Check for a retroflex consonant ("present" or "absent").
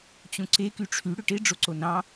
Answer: present